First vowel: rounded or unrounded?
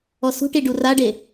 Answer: rounded